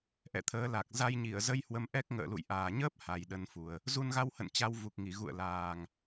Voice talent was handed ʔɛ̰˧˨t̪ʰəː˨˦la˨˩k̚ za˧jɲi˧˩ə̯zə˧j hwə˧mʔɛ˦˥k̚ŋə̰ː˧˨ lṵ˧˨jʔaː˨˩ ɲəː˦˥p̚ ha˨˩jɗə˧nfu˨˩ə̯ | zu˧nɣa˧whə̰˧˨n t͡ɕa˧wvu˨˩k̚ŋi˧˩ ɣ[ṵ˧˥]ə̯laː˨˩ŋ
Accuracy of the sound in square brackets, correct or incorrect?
incorrect